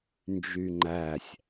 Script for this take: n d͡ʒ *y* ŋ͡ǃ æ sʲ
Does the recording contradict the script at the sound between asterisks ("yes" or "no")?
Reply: no